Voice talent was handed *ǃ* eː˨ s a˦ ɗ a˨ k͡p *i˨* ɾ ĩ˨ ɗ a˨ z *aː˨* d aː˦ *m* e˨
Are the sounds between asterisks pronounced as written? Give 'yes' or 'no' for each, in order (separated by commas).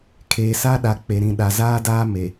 no, no, no, yes